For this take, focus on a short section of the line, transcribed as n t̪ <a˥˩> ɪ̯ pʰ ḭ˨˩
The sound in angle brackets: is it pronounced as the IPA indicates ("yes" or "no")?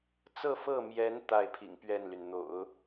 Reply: yes